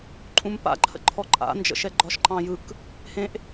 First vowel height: high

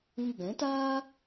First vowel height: high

